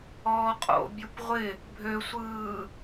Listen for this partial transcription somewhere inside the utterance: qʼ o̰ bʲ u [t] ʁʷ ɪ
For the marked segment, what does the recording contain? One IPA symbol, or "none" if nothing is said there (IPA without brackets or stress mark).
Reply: p